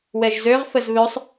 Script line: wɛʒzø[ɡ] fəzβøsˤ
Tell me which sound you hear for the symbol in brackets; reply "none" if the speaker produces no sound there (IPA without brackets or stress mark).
ʁ